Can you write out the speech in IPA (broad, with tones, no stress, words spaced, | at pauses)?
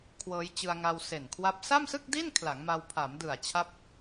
kʰwɤː˦˥jt͡ɕɯ˧a̯ŋa˧w se˨˩nkʰwa˦˥p̚ sa˥˩msɯ˥˩k̚di˥˩n kʰla˩˦ŋma˧w pʰa˩˦mdɯ˨˩a̯t͡ɕʰa˦˥p̚